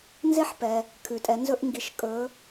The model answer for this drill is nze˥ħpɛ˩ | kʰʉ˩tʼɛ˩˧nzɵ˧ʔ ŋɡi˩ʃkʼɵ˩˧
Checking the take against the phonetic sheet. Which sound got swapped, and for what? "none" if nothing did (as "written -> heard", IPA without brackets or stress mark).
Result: none